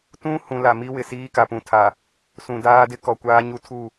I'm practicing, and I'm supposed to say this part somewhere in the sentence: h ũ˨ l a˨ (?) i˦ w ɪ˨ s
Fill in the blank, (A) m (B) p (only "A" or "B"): A